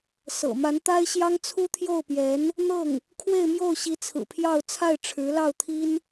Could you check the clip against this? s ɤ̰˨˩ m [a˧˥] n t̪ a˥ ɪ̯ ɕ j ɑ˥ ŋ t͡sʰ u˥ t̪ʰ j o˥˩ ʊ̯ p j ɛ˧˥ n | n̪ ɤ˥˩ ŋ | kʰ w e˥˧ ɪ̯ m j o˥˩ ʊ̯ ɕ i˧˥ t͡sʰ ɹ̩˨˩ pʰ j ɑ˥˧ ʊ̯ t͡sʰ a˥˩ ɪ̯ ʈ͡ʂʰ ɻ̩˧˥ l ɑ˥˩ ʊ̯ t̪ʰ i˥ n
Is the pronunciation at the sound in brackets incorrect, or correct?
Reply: correct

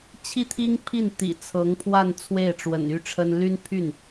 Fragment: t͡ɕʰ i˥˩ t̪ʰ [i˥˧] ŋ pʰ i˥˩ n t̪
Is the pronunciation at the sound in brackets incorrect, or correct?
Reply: incorrect: i˥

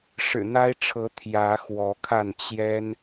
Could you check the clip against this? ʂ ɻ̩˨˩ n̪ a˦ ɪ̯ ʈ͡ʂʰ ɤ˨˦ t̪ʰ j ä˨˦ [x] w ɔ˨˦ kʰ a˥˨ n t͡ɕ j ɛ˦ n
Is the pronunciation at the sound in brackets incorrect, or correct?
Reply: correct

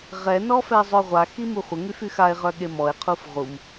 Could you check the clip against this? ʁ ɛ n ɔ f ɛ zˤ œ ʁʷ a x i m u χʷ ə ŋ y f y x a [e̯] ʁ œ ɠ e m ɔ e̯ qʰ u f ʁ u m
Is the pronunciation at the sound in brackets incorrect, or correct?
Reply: correct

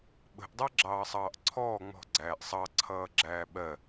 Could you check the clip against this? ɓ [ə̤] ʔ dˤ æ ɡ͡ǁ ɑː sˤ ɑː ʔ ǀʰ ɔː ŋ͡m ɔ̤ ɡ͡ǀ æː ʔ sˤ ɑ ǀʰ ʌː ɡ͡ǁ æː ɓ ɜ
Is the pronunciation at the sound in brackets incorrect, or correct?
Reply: correct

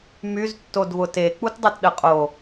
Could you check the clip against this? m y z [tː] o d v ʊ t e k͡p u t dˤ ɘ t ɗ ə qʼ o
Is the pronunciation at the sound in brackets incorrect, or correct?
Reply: correct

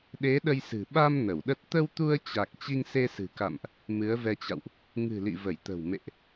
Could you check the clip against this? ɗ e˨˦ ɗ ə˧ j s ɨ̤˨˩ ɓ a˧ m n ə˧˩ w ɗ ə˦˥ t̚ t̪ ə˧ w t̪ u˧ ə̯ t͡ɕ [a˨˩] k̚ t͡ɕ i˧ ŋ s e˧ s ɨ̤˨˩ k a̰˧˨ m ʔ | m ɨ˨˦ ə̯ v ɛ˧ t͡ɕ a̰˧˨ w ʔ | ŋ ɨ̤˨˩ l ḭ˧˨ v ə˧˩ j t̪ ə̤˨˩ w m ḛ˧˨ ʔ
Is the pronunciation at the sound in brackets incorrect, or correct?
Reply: correct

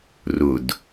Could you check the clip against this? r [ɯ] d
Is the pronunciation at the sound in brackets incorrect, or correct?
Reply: incorrect: ʊ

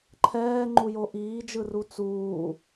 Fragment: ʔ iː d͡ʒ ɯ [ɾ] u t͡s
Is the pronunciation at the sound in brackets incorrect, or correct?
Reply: incorrect: r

